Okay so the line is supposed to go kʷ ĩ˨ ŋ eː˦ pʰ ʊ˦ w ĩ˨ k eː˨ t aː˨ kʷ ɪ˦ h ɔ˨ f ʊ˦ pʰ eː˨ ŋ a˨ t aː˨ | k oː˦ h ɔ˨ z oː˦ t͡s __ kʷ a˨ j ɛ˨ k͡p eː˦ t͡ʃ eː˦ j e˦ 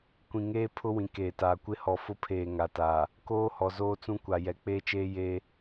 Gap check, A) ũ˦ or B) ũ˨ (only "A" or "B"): A